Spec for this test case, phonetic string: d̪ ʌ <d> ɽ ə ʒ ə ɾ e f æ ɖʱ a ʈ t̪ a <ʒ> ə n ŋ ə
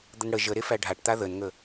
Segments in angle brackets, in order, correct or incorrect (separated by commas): incorrect, incorrect